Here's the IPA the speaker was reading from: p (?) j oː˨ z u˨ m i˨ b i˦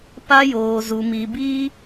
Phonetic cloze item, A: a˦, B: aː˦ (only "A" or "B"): A